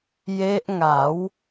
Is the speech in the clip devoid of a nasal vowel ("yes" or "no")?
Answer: yes